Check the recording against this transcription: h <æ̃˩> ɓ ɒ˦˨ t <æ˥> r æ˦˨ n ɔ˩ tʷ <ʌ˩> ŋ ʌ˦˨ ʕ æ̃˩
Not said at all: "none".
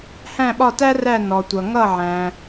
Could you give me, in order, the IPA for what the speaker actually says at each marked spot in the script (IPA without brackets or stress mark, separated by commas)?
æ̃˦˨, æ˥, ʌ˩